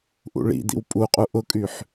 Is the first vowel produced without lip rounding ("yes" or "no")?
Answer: no